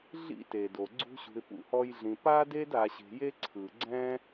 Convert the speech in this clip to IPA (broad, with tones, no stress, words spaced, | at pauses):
ɮḭ˦te˨do˨ ɡ͡ǀṳ˦ɕṳ˧ɪ̯ pṵ˦hɔ˦jɮĩ˧ pa˦de˦d a˧ɕe̤˧je˦ ǀʰɯ˨ɡ͡ǀɛ̃˦